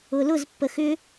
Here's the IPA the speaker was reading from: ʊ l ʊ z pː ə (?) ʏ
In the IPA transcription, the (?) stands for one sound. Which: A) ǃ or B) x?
B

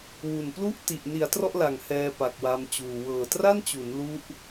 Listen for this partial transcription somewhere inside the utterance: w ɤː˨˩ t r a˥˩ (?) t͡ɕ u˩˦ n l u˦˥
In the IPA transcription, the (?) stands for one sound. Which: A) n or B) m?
A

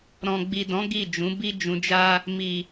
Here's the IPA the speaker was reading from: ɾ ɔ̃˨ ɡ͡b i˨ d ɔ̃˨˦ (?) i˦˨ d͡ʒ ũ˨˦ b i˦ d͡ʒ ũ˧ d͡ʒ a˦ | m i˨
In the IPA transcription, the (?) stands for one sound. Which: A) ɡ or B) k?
A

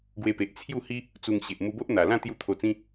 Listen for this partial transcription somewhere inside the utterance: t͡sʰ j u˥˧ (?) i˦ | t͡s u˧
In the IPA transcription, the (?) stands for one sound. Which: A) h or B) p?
A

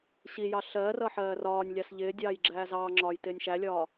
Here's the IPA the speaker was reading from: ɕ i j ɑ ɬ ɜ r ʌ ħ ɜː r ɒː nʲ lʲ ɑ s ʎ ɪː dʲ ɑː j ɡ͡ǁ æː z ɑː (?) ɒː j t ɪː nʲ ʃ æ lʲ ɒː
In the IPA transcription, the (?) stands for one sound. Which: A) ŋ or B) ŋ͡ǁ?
B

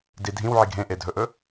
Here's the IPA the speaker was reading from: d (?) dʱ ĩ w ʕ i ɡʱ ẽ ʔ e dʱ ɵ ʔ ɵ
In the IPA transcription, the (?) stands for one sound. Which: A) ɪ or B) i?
B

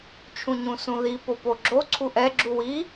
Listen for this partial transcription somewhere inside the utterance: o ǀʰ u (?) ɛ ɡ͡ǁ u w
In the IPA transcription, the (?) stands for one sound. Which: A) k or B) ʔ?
B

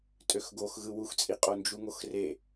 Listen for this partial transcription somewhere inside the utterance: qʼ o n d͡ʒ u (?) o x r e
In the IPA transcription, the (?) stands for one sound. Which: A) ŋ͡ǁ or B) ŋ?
B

